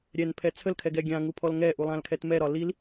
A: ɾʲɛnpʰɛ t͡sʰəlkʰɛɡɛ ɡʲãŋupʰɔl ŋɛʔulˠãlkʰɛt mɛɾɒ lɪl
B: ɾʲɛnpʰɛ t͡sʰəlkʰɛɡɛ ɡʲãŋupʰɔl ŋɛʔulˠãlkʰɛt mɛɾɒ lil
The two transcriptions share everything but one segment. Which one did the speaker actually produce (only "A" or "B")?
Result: B